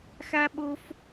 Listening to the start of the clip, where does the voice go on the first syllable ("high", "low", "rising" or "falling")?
high